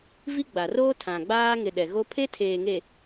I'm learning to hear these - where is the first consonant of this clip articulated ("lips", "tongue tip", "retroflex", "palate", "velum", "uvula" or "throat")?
lips